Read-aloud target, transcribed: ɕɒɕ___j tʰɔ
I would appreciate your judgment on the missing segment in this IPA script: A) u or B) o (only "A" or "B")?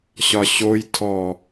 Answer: B